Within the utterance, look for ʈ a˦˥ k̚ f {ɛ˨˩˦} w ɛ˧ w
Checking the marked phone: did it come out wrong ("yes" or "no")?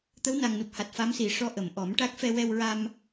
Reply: yes